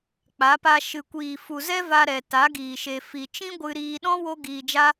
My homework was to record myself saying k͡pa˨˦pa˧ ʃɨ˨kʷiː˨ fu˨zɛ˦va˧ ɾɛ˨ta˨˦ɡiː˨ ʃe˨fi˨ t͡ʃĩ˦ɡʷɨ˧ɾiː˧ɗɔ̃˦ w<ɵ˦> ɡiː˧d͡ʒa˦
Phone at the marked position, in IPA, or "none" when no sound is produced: o˦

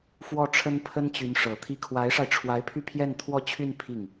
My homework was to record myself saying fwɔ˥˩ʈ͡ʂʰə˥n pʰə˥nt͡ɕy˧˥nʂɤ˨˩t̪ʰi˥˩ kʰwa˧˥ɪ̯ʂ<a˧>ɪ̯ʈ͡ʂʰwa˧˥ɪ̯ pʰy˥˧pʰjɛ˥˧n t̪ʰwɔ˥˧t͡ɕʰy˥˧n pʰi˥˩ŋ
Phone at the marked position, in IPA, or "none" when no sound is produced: a˧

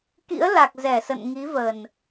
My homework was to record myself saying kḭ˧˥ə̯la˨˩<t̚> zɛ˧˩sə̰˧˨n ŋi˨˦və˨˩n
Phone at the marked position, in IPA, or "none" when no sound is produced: k̚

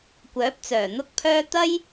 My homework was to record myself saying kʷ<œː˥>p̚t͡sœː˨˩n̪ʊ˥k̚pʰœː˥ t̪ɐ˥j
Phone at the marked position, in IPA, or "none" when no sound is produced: œː˨˥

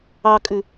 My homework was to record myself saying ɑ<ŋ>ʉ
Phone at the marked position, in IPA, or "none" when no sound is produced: kʼ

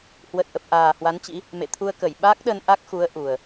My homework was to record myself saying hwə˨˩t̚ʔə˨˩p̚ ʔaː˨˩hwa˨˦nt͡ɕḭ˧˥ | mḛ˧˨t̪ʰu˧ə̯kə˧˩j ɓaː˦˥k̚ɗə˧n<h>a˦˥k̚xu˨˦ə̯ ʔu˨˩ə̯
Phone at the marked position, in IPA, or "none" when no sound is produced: ʔ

